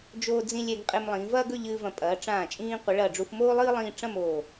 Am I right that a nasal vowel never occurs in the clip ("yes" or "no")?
no